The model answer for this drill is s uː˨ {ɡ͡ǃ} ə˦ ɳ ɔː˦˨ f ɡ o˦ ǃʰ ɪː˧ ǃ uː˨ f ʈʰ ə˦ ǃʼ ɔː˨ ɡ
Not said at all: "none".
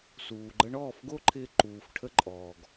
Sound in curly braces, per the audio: ɡ͡ǃ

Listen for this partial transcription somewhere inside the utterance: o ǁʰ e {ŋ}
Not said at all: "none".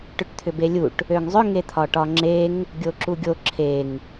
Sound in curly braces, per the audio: ŋ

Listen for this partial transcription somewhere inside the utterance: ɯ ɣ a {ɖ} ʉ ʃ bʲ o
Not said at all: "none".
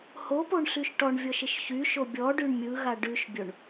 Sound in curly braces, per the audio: ɖ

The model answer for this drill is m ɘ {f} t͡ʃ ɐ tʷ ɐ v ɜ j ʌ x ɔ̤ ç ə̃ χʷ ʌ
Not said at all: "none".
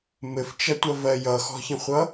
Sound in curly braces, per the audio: f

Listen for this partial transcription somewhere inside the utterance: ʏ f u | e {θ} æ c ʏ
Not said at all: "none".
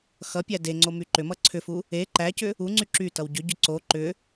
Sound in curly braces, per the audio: ǃ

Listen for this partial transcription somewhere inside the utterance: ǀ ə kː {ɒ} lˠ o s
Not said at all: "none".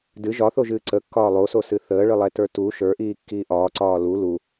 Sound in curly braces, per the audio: ɒː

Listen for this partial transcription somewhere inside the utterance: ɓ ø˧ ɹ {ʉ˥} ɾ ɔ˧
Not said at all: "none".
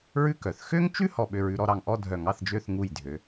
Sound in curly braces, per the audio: ʉ˧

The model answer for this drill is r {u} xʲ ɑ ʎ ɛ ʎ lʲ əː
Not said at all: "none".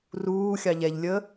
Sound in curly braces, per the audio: uː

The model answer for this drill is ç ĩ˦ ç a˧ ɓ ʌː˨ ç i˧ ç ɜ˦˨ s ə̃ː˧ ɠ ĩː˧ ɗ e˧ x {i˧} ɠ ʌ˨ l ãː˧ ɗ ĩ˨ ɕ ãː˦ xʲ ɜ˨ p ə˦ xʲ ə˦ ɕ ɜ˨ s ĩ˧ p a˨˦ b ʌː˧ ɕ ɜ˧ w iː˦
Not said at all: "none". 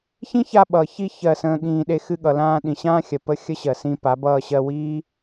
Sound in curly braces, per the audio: ɨ˧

